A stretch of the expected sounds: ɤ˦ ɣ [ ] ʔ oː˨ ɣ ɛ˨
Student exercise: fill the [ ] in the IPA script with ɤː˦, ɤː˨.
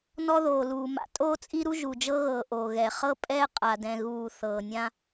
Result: ɤː˨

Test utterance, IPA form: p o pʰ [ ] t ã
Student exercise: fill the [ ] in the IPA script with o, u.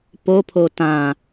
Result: o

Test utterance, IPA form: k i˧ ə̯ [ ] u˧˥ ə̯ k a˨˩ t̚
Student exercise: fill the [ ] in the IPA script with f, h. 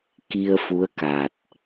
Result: f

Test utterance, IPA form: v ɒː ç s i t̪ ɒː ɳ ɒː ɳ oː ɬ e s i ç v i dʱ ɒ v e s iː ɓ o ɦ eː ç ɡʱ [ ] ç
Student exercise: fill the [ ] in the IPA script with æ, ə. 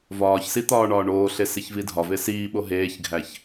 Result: æ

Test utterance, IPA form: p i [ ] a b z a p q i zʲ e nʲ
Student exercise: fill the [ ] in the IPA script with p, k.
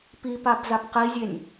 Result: p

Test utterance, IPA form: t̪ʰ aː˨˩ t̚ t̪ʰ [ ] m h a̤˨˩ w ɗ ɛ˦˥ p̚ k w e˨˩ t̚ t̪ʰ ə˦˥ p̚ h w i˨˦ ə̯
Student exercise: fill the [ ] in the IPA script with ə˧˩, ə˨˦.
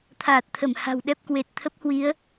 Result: ə˧˩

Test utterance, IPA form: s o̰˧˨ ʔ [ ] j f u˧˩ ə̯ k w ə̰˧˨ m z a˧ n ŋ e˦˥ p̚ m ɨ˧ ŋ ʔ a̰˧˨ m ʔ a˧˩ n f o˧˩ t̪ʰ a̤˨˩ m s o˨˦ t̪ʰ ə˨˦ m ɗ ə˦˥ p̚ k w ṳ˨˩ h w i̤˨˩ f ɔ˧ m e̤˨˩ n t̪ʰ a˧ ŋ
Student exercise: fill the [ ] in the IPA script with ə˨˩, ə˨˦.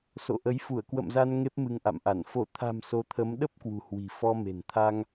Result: ə˨˦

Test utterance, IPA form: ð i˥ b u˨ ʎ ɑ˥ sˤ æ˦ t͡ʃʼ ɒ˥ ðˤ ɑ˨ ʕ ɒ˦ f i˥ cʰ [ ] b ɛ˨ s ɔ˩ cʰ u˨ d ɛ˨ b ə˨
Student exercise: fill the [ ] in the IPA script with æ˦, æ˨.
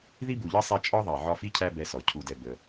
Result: æ˦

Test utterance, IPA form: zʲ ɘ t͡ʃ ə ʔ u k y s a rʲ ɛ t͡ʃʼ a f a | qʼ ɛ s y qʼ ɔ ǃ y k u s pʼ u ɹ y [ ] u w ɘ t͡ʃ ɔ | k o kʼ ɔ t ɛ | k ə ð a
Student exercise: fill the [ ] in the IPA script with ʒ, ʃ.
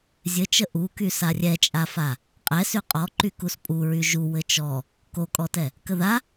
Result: ʒ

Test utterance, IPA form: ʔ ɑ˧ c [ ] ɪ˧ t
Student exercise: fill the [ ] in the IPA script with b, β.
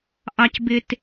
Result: b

